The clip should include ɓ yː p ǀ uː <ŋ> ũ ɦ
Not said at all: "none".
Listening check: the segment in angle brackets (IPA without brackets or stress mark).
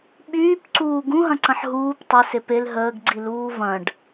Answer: ɡ